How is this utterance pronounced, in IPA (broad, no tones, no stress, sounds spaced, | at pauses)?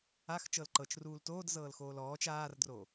a x t͡ʃ ɤ l ǃ ɤ t͡ʃ r uː l t oː d z ɤː l x oː l ɔː t͡ʃ aː r d r o